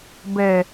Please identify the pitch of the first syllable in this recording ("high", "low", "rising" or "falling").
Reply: low